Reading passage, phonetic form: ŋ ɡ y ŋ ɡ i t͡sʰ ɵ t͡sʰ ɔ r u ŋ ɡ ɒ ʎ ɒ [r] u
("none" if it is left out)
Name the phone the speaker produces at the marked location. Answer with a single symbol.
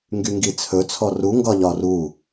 r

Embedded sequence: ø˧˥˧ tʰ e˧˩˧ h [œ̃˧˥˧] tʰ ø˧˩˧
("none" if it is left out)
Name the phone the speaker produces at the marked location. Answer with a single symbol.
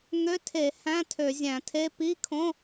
æ̃˧˥˧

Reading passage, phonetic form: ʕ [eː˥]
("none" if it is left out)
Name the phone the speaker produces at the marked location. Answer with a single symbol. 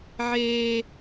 eː˥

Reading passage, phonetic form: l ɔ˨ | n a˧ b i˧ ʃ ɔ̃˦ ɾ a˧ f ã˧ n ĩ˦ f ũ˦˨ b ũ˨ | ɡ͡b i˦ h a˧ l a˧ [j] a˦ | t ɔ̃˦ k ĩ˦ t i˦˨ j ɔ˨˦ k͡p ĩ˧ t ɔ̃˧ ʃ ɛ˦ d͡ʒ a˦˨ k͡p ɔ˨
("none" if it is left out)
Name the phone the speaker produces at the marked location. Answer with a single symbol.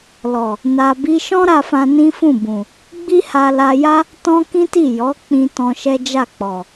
j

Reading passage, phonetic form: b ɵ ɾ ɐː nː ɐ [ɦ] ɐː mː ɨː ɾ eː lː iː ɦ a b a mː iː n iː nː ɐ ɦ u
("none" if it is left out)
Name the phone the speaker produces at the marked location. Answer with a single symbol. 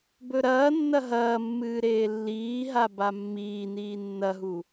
ɦ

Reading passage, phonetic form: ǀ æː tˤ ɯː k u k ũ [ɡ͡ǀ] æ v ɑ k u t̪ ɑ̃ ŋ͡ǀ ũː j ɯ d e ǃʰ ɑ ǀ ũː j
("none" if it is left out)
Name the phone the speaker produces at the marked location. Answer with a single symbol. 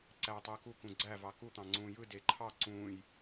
ɡ͡ǀ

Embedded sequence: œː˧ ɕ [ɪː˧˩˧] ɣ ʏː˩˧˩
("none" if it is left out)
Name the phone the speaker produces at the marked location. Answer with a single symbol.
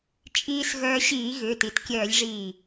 iː˧˩˧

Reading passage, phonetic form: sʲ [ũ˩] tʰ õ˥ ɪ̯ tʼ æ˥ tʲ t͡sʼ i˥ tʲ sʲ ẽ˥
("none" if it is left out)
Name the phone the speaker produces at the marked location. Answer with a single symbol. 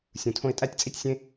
ũ˩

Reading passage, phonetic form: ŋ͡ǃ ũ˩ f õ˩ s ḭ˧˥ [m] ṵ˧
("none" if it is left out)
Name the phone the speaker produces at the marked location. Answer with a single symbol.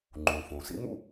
m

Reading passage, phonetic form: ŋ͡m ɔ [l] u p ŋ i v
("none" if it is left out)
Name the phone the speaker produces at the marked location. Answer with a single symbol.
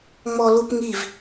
l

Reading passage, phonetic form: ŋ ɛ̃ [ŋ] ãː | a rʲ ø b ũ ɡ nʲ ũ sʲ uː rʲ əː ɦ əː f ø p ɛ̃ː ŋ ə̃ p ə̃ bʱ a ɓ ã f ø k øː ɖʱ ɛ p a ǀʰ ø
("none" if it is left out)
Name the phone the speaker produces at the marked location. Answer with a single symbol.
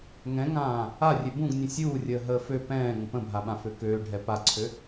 ŋ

